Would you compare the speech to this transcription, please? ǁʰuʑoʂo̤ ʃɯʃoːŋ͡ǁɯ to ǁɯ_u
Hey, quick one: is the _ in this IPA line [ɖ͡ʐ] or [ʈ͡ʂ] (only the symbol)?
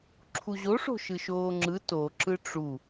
ʈ͡ʂ